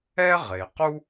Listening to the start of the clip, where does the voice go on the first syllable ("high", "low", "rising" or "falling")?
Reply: high